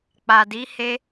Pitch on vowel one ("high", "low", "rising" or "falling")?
low